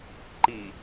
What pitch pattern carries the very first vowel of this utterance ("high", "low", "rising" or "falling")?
low